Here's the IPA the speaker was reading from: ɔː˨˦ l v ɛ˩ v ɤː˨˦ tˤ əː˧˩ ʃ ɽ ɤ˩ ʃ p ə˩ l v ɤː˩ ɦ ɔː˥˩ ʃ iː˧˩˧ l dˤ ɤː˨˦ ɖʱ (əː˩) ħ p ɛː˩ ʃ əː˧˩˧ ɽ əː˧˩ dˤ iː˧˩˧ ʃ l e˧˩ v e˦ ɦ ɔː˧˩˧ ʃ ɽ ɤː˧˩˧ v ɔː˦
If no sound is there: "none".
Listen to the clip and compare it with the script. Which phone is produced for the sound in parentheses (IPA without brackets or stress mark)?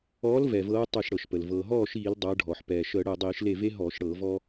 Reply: ɔː˩